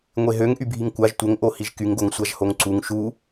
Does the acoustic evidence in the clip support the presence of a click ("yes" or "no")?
yes